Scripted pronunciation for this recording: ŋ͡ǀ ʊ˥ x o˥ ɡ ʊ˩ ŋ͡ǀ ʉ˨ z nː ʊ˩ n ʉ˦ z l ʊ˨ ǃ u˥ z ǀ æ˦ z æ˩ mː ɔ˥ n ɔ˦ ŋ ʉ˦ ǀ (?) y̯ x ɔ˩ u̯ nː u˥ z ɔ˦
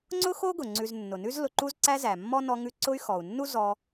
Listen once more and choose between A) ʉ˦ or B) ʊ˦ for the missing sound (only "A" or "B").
B